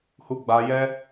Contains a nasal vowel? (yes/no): no